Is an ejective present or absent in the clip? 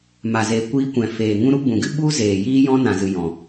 absent